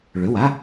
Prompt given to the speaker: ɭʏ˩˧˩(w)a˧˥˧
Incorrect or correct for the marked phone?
correct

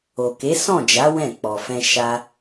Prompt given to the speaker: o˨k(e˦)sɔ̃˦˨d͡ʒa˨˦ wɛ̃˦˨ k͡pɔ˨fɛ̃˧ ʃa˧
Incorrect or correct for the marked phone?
incorrect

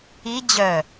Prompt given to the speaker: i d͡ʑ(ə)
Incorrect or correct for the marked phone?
incorrect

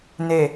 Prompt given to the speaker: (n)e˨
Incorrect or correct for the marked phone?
correct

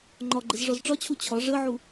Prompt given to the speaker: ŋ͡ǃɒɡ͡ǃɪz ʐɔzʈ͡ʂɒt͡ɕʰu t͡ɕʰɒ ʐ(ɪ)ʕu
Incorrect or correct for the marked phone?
incorrect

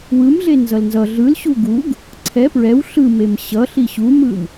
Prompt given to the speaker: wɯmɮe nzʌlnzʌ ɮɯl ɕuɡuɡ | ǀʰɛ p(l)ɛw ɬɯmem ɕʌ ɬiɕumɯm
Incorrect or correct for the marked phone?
incorrect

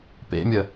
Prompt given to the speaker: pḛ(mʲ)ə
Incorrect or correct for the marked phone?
correct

